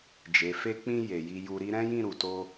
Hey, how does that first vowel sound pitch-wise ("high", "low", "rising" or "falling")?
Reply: low